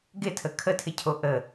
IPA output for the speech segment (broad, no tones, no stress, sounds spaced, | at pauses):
ɡ ɪ tʰ ə kʰ ə tʰ ɪ cʰ o ʔ ə